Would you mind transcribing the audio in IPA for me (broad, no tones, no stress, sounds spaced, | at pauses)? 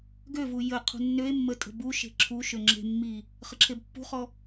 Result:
ɡ ø v u j ə qʰ ṳ nː ø e̯ mː ə tʼ ə̤ b u ʃ e̤ ǁʰ u ʃ ø ŋ͡ǁ e̤ mː i | χ ə ǁʰ e b pː ṳ χ ɔ